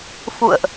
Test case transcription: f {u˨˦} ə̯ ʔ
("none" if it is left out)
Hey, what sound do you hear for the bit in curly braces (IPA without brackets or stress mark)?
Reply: ṵ˧˨